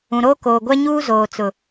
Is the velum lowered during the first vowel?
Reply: yes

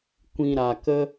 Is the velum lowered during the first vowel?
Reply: yes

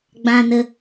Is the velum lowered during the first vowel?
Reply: yes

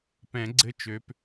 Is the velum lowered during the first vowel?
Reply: yes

